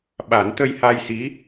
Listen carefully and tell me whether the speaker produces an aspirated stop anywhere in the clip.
no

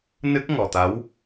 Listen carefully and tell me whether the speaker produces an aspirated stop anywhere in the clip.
no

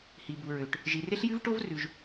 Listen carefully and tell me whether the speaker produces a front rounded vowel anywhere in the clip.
yes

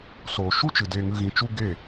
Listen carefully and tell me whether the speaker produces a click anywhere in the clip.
no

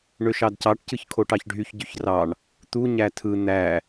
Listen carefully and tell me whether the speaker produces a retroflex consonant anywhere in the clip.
yes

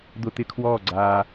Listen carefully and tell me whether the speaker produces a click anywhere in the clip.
yes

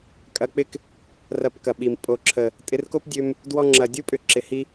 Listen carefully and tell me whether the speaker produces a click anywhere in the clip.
yes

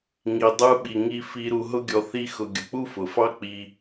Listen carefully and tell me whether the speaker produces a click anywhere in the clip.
no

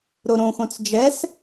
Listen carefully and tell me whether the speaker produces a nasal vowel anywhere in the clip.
yes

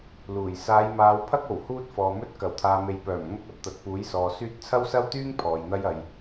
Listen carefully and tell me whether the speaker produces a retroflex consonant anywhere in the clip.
no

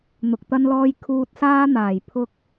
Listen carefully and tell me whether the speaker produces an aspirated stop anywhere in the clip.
yes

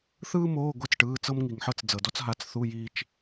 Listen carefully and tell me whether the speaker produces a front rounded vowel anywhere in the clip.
no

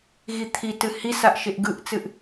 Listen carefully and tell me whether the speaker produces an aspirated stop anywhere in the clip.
yes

